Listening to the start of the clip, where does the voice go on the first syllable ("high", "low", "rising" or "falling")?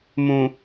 low